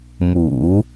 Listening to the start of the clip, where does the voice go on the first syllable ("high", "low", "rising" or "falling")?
low